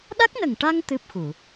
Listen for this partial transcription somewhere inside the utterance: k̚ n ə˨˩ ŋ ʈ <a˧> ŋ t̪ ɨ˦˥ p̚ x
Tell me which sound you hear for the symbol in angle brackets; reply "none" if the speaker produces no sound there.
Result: a˧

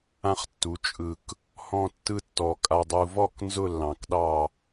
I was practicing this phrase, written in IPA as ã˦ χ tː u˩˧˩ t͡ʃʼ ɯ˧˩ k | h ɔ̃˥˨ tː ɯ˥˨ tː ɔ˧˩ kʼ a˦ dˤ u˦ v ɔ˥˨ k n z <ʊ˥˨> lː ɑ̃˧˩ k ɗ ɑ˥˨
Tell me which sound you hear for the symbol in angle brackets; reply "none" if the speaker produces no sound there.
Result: ʊ˥˨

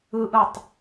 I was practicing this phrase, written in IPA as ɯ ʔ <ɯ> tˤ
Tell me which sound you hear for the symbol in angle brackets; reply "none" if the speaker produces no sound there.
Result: ɯ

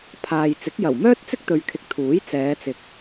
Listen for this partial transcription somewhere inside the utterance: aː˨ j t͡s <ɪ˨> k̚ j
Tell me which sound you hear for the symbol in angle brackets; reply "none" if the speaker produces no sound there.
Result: ɪ˨˥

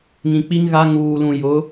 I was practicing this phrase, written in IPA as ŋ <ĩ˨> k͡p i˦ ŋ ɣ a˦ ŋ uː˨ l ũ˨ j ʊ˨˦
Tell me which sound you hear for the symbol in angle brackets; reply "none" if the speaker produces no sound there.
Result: ĩ˨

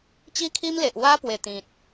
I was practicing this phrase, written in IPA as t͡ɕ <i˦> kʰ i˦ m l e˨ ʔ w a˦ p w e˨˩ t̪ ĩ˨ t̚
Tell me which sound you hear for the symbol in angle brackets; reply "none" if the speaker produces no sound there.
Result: i˦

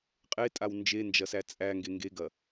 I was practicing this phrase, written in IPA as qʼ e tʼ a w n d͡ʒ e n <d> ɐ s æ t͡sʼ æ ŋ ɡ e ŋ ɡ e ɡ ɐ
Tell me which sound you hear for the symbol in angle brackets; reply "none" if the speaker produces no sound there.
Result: d͡ʒ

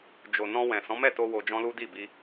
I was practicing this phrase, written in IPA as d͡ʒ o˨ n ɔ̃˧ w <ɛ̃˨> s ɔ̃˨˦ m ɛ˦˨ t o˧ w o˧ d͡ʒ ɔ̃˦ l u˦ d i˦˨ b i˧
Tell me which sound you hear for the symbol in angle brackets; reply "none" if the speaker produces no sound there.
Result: ɛ̃˨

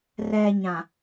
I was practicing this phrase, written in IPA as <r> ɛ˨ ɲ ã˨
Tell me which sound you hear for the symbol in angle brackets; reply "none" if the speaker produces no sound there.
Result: r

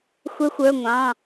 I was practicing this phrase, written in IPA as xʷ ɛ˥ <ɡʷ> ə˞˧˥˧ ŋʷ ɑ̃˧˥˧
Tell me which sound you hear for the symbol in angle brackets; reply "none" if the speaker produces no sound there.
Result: xʷ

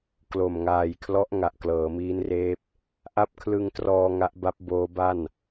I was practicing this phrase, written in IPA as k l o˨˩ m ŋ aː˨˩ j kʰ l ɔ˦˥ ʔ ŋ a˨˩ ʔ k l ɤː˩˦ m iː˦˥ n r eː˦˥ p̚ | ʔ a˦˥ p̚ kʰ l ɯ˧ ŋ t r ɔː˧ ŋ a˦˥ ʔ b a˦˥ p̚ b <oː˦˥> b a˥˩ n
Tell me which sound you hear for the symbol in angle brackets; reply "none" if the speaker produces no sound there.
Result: oː˦˥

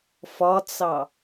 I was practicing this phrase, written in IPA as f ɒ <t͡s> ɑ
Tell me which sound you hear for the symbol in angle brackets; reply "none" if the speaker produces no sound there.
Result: t͡s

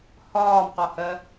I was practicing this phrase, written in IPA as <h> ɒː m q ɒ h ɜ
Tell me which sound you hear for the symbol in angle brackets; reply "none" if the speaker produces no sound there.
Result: h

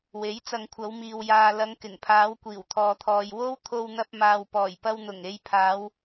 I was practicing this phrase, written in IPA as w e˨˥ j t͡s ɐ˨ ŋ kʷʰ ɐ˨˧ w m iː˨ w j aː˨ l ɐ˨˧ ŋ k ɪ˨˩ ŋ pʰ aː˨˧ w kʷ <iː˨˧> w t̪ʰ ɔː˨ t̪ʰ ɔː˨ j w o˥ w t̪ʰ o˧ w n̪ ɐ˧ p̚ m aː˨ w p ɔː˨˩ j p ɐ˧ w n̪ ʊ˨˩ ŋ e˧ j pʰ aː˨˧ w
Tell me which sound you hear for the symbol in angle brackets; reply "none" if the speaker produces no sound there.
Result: iː˨˩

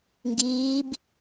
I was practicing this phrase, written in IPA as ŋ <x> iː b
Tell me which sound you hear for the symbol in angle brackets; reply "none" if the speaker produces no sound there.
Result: ɡ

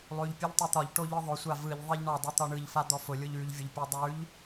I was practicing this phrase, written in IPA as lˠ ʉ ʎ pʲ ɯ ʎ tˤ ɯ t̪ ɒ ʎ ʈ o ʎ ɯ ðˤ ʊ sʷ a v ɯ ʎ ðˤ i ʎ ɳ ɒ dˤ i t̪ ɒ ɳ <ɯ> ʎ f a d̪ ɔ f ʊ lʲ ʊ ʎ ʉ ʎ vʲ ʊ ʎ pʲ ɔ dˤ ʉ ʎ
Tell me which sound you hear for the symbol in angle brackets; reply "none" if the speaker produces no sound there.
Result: ɯ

